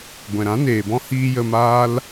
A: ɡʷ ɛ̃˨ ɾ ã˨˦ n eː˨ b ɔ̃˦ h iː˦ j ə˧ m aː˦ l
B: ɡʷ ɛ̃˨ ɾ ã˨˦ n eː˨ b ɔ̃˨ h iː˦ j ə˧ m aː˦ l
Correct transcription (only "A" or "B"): A